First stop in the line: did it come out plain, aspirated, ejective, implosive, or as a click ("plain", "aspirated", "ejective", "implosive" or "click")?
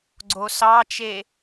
click